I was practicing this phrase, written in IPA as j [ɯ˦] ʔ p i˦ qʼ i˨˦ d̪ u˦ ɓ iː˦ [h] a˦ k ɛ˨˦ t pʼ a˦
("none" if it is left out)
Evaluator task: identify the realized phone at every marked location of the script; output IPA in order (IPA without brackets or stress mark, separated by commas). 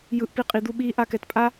ɯ˦, ʔ